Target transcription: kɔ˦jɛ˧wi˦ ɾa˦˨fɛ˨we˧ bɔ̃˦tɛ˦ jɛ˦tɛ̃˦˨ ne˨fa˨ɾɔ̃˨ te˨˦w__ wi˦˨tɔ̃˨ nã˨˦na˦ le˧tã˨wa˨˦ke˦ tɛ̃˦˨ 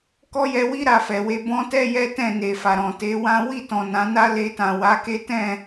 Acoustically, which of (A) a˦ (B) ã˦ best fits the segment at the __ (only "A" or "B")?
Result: B